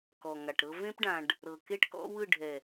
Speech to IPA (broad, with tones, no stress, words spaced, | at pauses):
kɔ˨ŋa˨ʈɾɤ˦ vẽ˦pɖã˨ɖ | ɾɤ˨ke˦ʈ kɔ̰˦wɯ˦˨ɖʱɛ˨